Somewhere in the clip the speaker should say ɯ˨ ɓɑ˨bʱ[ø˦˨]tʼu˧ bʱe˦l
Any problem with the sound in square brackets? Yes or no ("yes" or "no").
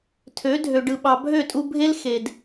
no